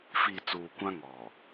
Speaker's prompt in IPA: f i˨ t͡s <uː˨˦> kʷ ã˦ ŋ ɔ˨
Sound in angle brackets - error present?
yes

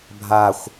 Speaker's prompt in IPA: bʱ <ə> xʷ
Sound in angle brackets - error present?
yes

